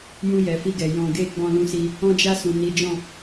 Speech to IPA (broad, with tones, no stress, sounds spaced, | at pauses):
j ũ˧ j ɛ˨ f i˧ ɡ ɛ˨ j ɔ̃˨ ɡ e˧ ɡ͡b ɔ̃˧ l ũ˧ s i˧ | ɔ̃˧ d͡ʒ a˧ s ũ˨ n i˨˦ d͡ʒ ɔ̃˦˨